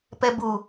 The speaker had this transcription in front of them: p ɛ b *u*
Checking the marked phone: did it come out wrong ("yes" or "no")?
no